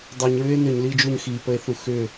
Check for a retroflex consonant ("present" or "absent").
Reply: absent